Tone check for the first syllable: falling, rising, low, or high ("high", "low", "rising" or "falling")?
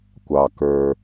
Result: low